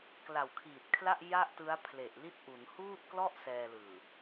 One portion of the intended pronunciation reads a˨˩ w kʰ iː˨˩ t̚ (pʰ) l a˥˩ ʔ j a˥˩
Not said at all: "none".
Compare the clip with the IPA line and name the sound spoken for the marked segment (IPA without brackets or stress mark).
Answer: kʰ